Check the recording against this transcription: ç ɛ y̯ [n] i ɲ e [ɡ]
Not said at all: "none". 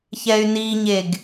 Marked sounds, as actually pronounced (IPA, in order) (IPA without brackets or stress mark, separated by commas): n, ɡ